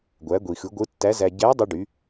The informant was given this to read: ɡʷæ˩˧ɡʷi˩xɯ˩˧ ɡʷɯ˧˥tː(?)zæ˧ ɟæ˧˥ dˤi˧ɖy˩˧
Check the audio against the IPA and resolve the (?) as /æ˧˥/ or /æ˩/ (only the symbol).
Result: æ˧˥